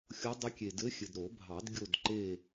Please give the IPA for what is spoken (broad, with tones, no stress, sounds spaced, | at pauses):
xʲ o˧˥ dˤ ə˧˥ kʲ e˨ d ɘ˧˥ xʲ ɘ˨ d ɾ o˨˩˦ bʱ ɑ˨˩˦ d ɡʲ o˦˨ d ǃ e˦˨